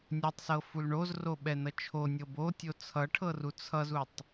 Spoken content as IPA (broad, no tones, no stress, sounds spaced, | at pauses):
nʲ o tˤ s ɤ f u l ɳ o z r o ɓ ɛ n ʌ t͡ʃʰ o nʲ ɤ b o tʲ o t͡sʰ ʌ ʈʰ ɤ r u t͡sʰ ʌ z u tˤ